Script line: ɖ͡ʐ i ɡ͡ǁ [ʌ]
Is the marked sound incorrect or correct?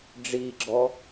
incorrect